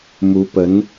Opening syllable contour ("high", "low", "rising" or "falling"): rising